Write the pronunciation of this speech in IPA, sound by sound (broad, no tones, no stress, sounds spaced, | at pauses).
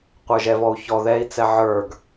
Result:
qʷ ə˞ ʒ ɛ v ɔ u̯ ç ɔ ð ɛ i̯ t͡s ɛ ʕ ə˞ ɡ